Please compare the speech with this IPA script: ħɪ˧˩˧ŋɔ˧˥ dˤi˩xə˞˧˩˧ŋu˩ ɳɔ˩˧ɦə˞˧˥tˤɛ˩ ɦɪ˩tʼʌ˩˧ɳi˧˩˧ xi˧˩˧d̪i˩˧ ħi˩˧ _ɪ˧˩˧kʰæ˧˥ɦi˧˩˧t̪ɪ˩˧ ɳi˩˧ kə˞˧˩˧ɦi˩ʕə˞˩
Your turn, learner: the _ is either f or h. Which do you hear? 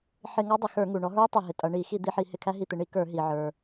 h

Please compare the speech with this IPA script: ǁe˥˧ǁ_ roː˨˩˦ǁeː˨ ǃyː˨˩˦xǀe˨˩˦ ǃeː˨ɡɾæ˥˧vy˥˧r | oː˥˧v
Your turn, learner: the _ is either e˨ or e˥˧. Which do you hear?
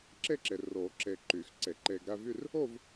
e˨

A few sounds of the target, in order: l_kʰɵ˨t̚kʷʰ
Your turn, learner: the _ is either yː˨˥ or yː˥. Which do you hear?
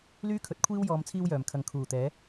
yː˥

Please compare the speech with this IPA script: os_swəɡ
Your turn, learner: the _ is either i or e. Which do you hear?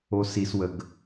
i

